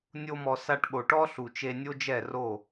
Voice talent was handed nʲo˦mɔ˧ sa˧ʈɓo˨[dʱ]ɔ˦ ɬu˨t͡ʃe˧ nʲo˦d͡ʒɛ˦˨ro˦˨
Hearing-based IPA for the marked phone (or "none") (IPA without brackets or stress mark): ʈ